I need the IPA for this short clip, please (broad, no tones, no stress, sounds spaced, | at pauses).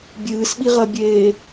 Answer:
bʲ ɨː s ɓ i ʁ ɐ bʲ eː